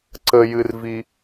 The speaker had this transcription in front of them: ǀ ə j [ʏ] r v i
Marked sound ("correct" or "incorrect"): incorrect